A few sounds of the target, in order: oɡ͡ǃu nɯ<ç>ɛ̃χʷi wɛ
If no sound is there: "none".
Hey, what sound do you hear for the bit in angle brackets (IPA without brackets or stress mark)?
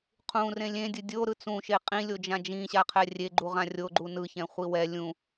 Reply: ç